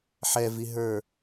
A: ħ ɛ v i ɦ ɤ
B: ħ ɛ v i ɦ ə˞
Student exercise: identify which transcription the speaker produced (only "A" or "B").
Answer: B